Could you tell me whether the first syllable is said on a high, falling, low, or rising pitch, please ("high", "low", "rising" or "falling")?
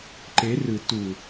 rising